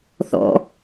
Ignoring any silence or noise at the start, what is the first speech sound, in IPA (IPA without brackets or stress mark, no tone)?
θ